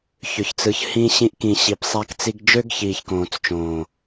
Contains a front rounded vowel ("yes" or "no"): yes